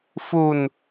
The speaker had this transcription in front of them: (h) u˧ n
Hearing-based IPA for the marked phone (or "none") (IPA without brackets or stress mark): f